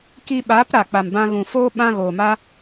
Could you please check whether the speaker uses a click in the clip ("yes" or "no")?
no